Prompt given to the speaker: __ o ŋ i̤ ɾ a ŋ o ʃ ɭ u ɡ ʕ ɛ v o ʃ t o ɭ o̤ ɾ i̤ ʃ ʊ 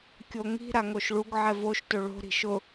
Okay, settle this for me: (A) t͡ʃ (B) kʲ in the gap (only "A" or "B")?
B